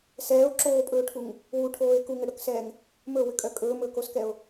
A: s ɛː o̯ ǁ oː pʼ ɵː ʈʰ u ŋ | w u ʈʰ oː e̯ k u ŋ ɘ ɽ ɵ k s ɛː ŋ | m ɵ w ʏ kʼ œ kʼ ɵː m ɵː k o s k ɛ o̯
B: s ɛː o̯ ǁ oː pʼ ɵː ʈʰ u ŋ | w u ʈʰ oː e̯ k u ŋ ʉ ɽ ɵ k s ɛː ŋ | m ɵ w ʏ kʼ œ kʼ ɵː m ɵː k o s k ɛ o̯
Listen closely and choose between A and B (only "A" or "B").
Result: A